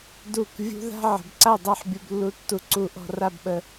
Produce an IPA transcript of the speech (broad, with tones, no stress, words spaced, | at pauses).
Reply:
du˧˩k vʲṳ˥ ða̤˥ ʕə̤˩˧bǀa˥˧dˤa˥˧ħ bʲu˧blːu˧tːu˧ ǀu˧ʔɔ̤˧ra˥˧bɓə˧